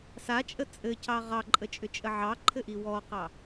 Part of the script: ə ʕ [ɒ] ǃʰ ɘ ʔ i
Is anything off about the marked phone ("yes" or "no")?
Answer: yes